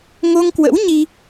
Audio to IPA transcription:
ŋ o˧ ŋ k w ə̰˧˥ w ɲ i˧

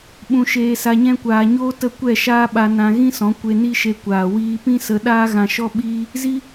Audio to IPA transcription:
ɓ ũ˧ ʃ eː˧ s a˧ ɲ ɛ̃˦ kʷ aː˧ ɲ oː˦ t ə˦˨ kʷ ɛ˦˨ ʃ aː˦ ɓ a˧ n ã˧ ɣ ĩ˦ s ɔ̃˨˦ kʷ e˧ n i˦ ʃ e˧ kʷ aː˨ w iː˧ p ĩ˦ s ə˧ ɗ aː˦ ɣ ã˧ ʃ ɔ˦ ɓ iː˦ | z i˦

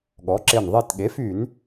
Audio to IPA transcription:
ɠ ɔ˩˥ ǁ e˧˩ n ðˤ e˧˩ t ɠ e˩˥ f y˧˩˧ n

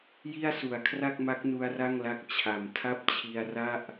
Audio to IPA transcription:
j i˥˩ a̯ s u˨˩ a̯ kʰ r a˥˩ k̚ m a˦˥ k̚ n u˦˥ a̯ r a˥˩ ŋ l a˦˥ k̚ t͡ɕʰ a˩˦ m tʰ a˥˩ p̚ t͡ɕʰ i˧ a̯ r a˥˩ ʔ

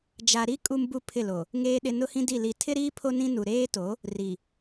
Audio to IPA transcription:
d͡ʒ a˨ ɾ i˦ kʼ u˦ m b u˦ pʰ ɪ˦˨ l o˨ | ŋ eː˨ ɗ ɪ˨ n ʊ˦ h ĩ˦ d i˦˨ l i˨ tʰ ɪ˦ ɾ iː˦ pʰ o˦ n ĩ˦ n u˨ ɾ eː˦ t o˨˦ | r i˨

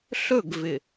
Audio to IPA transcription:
ɬ ɵ˦˨ ɡ v ɪ˨

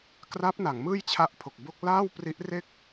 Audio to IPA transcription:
k r a˦˥ p̚ n a˩˦ ŋ m ɯː˥˩ j t͡ɕʰ a˦˥ ʔ pʰ o˨˩ k̚ b o˥˩ k̚ l aː˥˩ w p r i˦˥ ʔ r e˥˩ k̚

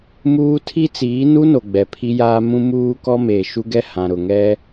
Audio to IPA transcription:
m uː˦ tʰ i˦ t͡s iː˨˦ n u˦ n o˨ ɡ͡b ɛ˨ pʰ i˦ j aː˦ m ũ˦ m uː˦ k ɔ˦ m eː˨ ʃ u˦ ɡ ɛ˦ h ã˨ ɾ ʊ˨ ŋ ɛ˦

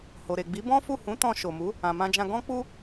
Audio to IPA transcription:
h o˨ ɾ e˨ ɡ͡b i˨˦ b ɔ̃˦ f u˦˨ h ũ˨˦ t ɔ̃˧ ʃ o˨ m u˨˦ | ã˨ m ã˧ d͡ʒ ã˧ ɡ ɔ̃˦ k͡p u˦

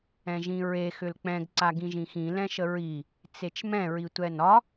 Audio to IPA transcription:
ɛ̃ ʒ ĩ ɹ e x ʏ l k͡p ɛ̃ ɡ ǀ a ɡ ĩ ʒ ĩ x ĩ l ɛ̃ ʃ ə ɹ i | t͡s e t͡ʃ m ɛ̃ ɹ i tʷ ɛ n ɒ

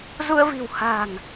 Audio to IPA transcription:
z u˧ ə̯ v i̤˨˩ w h a̤˨˩ ŋ

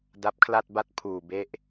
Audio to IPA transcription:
d a˦˥ p̚ kʰ l a˥˩ t̚ b a˥˩ t̚ pʰ uː˨˩ b e˦˥ ʔ

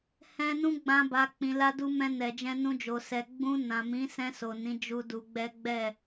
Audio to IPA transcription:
h ɛ̃˧ n ũ˦ ɡ͡b ã˧ b a˨ k͡p ĩ˨ l a˧ d u˧ m ɛ̃˧ n ɛ˨ d͡ʒ ɛ̃˧ n ũ˧ d͡ʒ o˨ s ɛ˨ ɡ͡b ũ˧ n ã˨ m ĩ˨˦ s ɛ̃˧ s o˨ n ĩ˨˦ d͡ʒ u˦ d u˧ ɡ͡b ɛ˦ ɡ͡b ɛ˦˨

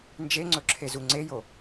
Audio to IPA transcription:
n d͡ʒ e ŋ͡ǀ ɵ ǁʰ e z u ŋ͡ǀ e j o

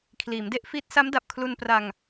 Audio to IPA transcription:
kʰ l iː˩˦ m d e˥˩ ʔ f iː˦˥ t̚ s a˦˥ m d a˨˩ p̚ kʰ l u˧ n p r a˧ ŋ

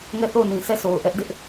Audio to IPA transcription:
ŋ ɛ˦˨ θ o˦˨ ʊ̯ n ĩ˨ sʰ ɛ˦˨ sʰ o˨ ʊ̯ ʔ ɛ˦ ʔ d ɪ˦ ʔ

